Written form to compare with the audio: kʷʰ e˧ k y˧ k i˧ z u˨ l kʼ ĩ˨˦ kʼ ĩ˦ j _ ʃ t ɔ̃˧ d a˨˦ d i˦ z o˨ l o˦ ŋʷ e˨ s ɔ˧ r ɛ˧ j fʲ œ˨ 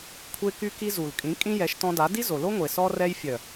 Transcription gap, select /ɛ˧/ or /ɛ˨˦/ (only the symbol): ɛ˨˦